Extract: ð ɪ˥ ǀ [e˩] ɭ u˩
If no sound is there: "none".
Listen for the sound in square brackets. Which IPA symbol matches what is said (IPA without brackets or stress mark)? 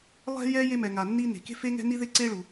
e˥